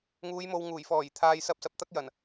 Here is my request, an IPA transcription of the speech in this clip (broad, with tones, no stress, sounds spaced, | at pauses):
ŋ uː˨˧ j m o˨ w ŋ uː˨˩ j f ɔː˨˩ j t̪ʰ aː˨ j s ɐ˧ p̚ s ɐ˨ p̚ t̪ ɐ˥ k̚ j ɐ˨˩ n